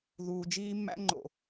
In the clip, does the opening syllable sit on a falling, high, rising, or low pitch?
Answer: low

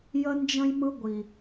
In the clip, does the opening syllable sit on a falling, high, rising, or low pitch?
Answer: high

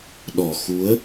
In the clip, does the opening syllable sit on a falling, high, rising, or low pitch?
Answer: low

